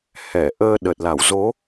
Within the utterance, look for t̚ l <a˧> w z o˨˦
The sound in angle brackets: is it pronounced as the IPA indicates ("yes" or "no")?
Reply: no